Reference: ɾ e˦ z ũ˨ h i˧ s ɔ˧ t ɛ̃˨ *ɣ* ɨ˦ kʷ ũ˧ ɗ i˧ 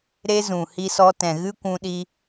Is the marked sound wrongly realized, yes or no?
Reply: no